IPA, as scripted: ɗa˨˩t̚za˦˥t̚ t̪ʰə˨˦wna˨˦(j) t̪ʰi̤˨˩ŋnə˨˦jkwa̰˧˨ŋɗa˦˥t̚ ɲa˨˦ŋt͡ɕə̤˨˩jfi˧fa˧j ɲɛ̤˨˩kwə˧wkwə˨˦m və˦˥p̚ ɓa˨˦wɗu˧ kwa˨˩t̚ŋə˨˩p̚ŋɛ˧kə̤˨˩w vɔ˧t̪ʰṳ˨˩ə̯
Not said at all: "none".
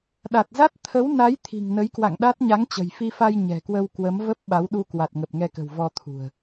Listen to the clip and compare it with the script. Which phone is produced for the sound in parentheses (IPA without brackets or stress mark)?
j